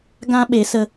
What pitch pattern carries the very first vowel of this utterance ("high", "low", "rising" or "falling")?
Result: high